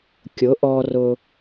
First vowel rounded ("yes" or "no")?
yes